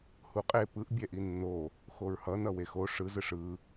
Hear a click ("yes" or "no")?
no